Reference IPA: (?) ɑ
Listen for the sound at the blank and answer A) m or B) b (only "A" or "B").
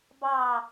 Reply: B